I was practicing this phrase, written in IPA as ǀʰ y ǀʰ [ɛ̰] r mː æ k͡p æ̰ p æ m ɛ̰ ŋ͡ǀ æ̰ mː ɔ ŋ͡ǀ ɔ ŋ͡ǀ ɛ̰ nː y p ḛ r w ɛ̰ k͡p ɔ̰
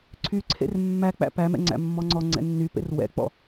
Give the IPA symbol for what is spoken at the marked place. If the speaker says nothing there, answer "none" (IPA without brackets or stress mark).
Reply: ḛ